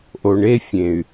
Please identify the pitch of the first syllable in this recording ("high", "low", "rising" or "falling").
low